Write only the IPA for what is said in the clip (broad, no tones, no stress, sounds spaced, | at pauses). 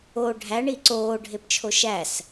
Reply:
o ɖʱ æ ɳ i ǀ oː ɖʱ e p t͡ʃʰ o ʃ æ s